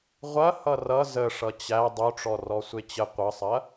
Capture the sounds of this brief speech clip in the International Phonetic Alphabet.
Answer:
ʁʷɐ hʌrʌ zəʂʌ t͡ɕæ dˤoʈ͡ʂɔ rɔsʷet͡ɕə qʷʌsˤɐ

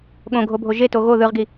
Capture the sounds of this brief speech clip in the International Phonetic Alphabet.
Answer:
ɠõɡʱobʱo ʒeto ɣo ðɯʁɡi

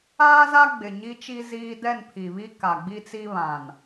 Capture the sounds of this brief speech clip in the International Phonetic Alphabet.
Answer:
aː˦za˦ ɡ͡bɪ˨ɲi˦t͡ʃi˦ ziː˦ dɛ˦˨npʰi˨βi˦ ka˨ɡ͡bi˦t͡si˦ βã˨n

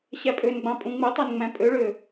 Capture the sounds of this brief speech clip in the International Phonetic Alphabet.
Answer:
ɕæpʼønɡ͡bɑ̃ pʼũŋ͡mɯtˤen ŋ͡mæ̃pʼøɭø

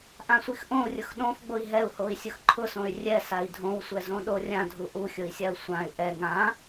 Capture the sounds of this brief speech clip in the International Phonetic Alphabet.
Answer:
ʔãsʷixʔõu̯rʲʊx ɗõf ɡ͡boi̯ɦɛu̯ hoi̯sʲʊxǃʰʊsõy̯ rʲɛsai̯ dʱõwsʷɛ zõɗorʲã dʱuʔuxʲʊi̯sʲau̯ sʷãy̯ ʔɛ ŋã

